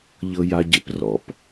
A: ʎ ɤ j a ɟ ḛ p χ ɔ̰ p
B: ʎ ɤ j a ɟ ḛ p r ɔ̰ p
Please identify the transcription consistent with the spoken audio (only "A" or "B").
B